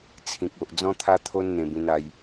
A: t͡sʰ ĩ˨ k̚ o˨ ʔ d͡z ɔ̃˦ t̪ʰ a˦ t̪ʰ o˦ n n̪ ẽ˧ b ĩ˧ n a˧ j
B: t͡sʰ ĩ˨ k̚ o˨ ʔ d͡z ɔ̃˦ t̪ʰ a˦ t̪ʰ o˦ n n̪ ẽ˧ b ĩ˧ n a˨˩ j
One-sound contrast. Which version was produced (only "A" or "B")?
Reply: A